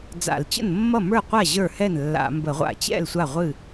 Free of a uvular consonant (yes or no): no